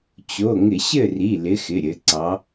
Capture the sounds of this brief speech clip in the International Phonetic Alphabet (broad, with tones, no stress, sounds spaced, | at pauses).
t͡ɕ o˩˧˩ ŋ ɪ˧˩˧ ɕ ɘ˥˨ r i˩˧˩ l ɪ˨˥ x ɪ˩˧˩ ɾʲ ɘ˩˧ ǀ ɑ˩˧